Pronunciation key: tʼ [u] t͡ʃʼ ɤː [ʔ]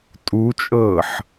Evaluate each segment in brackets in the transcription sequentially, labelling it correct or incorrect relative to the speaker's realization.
correct, incorrect: ħ

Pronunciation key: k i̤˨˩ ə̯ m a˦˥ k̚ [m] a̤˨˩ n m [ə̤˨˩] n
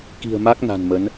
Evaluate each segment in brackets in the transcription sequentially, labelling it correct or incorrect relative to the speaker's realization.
incorrect: n, incorrect: ə˨˦

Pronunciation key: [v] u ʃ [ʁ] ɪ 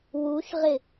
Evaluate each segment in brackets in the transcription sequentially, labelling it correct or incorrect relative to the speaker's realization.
incorrect: w, correct

